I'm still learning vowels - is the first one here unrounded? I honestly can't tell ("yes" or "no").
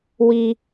yes